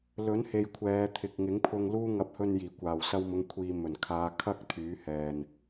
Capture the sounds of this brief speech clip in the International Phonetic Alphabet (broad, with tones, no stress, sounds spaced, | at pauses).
l ɵ˨˥ n h e˨ j kʷʰ ɛː˨˧ t̪ʰ ɪ˨ k̚ ŋ ɪ˨˥ ŋ pʰ ʊ˧ ŋ l uː˥ ŋ ɐ˧ p̚ h ɵ˧ n j iː˨˩ kʷ aː˨˩ w s ɐ˧ w m ʊ˨˧ ŋ kʷʰ iː˨ m ɵ˨˩ n kʰ aː˨˧ kʰ ɐ˥ k̚ t̪ʰ yː˨˥ h ɛː˨ n